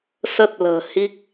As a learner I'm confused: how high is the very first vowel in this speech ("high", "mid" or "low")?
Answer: mid